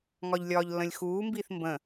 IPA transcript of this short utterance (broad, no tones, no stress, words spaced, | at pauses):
ŋɒʎlʲɒːʎlːə̃lʲxuː mbiːθmbə̃